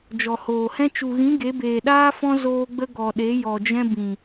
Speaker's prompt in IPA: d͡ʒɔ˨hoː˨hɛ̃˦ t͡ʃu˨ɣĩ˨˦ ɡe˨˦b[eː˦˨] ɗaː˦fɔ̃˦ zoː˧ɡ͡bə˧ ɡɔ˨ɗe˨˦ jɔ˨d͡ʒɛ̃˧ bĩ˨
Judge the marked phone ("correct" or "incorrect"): incorrect